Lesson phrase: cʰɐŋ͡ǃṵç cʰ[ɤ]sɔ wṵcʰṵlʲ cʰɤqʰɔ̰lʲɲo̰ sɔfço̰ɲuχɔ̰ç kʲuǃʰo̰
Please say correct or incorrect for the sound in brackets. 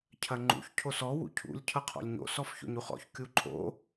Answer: incorrect